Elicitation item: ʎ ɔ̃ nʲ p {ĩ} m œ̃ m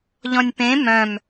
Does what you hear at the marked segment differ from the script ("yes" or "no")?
yes